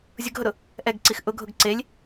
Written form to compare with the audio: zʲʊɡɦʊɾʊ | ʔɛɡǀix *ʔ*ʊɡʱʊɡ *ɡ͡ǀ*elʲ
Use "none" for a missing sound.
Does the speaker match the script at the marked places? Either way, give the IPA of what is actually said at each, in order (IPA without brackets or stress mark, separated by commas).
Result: ʔ, ǀ